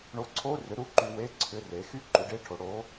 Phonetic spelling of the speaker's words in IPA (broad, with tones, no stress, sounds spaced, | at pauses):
ɳ o˧ ǀʰ o˧˥˧ r ʏ˨˥ ɾ u˨˥ ǃ y˧ w e˧˥˧ ǀʰ ʏ˧˥˧ r e˨˥ x y˧˥˧ ǃ u˨˥ ɖ e˧˥˧ ʈʰ o˨˥ ɽ o˨˥